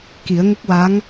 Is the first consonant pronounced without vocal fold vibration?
yes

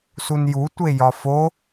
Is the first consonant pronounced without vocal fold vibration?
yes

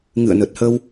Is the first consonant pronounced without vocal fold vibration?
no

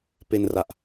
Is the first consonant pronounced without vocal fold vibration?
yes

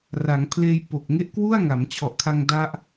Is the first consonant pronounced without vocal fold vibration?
no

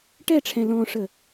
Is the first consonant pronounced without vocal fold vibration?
yes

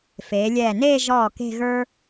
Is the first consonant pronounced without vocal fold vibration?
yes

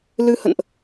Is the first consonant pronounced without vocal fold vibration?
no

